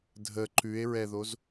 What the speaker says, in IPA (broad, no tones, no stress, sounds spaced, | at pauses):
dʱ ə ǃ ʉ e̯ ɹ ɛ ð o z